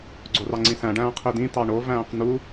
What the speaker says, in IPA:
ɡ͡ǀ o r ɑ ŋ͡ǀ ĩ s æ̃ ɖ æ̃ː qʰ i d ĩ t ɑ ɳ o v æ̃ː q n̪ u

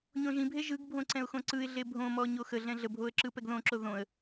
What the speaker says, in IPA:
ɲ õ ʒ ĩ bʱ e ʒ ɯ ɡ bʱ õ ǀ ɛ̃ ʊ̯ x õ ǀ ɯ ɪ̯ ɮ e bʱ õ m ɔ ɲ o x ə ɮ ɛ̃ ɮ ə bʱ o ə̯ ǁ ɯ p ɛ ɡ ð õ ǁ o ð õ ə̯

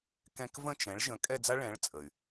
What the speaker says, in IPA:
k ɛ̃˥ k v ə̃˥˧ t͡ʃ ɛ̃˨˥ ɭ ʒ ə̃˨˥ kʼ ɛ˥˧ d͡z a˥ ɭ ɛ̃˨˥ ɭ t͡sʼ ə˩ y̯

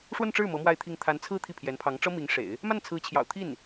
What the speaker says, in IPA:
ʂ w ə˥˧ n ʈ͡ʂ ɻ̩˥˩ m ɤ˧˥ m w a˥˧ ɪ̯ t̪ʰ i˥˩ ŋ t̪ʰ a˧˥ n t͡sʰ ɹ̩˥˧ t̪ʰ i˥˩ pʰ j ɛ˧˥ n pʰ ɑ˧˥ ŋ ʈ͡ʂ ɤ˥ m i˧˥ ŋ ʂ ḛ˨˩˦ ɪ̯ | m a˥˩ n t͡sʰ ɹ̩˧˥ t͡ɕʰ j ɑ̰˨˩ ʊ̯ t̪ʰ i˥˩ n

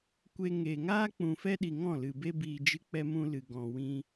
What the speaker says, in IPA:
kʷ e˧ ŋ e˨ ŋ aː˦ k͡p ũ˨ f ɛ˦ ɗ i˨ ŋ ɔ̃˦˨ l ɨ˨ b e˧ b iː˨ d͡ʒ ɨ˧ k͡p ɛ˧ m ũ˧ l ɨ˨ ɡ ɔ̃˨ w ĩ˧

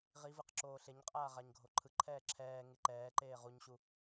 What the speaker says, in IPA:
ʁ i v ɯ q ǁ oː ɬ e ɲ qʼ aː ʁ a ɲ ɡʱ o ǃʰ ɯ ǃʰ ɛː ǁʰ ɛː ŋ e ǃ ɛː ǃ eː ʁ u ɲ ɕ u

